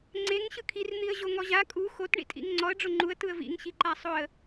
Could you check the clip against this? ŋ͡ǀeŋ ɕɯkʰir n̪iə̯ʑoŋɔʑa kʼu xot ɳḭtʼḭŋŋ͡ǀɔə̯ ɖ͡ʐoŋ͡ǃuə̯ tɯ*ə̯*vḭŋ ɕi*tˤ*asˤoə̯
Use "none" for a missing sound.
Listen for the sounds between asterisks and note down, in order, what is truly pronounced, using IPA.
ə̯, ǃ

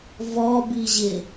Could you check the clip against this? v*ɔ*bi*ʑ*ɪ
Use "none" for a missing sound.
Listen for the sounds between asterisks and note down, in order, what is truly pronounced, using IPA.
ɔ, ʑ

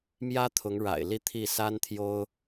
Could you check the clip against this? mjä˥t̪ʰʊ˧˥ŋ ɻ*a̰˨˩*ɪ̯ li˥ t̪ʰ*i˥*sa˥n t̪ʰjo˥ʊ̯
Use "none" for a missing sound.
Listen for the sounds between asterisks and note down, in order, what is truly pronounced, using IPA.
a̰˨˩, i˥˩

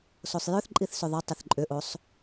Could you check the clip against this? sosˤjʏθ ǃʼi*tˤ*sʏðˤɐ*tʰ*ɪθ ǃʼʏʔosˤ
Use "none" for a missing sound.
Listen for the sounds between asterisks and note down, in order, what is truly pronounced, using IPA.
θ, tˤ

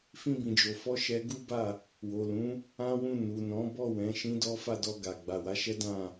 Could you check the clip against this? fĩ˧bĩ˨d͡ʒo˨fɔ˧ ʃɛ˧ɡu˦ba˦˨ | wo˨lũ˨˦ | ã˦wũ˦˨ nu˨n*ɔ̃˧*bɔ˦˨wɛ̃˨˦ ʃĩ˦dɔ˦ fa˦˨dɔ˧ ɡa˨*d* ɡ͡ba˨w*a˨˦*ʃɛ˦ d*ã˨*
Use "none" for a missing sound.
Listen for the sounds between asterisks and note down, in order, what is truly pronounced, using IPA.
ɔ̃˨˦, none, a˨˦, ã˦˨

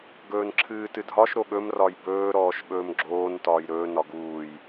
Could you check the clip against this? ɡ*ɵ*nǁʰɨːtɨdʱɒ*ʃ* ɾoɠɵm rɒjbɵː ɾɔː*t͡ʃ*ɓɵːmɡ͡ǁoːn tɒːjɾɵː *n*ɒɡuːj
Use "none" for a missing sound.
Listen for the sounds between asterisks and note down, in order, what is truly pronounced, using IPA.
ɵː, ʃ, ʃ, n

